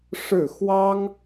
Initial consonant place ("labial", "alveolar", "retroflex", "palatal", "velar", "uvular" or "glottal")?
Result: retroflex